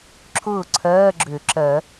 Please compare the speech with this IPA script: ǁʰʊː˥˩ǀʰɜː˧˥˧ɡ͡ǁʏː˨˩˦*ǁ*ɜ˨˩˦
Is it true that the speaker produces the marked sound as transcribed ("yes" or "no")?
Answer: yes